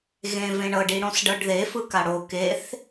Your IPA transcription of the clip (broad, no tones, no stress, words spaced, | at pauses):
ɣẽ vẽɳɤ ɖiɽõsɖɤɖðe fɯkaɽo keθ